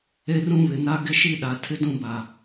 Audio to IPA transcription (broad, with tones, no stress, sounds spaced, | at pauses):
e˦ r ũ˦ β ɪ˨ n a˦ ɡ ɪ˦ ʃ i˦ ɗ a˨ tʰ ɪ˦ d ũ˦ b a˨